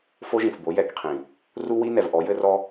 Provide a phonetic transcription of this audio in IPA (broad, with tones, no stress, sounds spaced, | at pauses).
f o˦ ʒ ĩ˨ f b o˨˦ j ɛ˨ k qʰ ĩ˨ | r u˦ w i˦ n ɛ˨ v ʔ ɔ˨˦ j ɘ˦ r ɔ˦